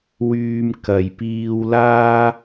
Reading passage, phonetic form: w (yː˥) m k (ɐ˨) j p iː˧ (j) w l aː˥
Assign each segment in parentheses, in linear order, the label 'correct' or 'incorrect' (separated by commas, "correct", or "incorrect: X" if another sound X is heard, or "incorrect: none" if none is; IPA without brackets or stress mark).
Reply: incorrect: yː˧, correct, incorrect: none